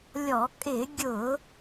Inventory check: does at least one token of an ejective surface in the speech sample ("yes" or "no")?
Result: yes